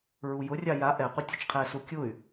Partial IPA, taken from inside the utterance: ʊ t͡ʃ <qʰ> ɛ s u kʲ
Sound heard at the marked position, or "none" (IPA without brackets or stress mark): qʰ